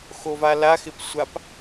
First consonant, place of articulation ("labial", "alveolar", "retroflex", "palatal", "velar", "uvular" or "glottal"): velar